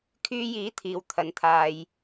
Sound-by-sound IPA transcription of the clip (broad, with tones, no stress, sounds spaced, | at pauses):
kʰ yː˧ j iː˨˥ t̪ʰ iː˨ w t̪ʰ ɐ˨ n t̪ʰ aː˨ j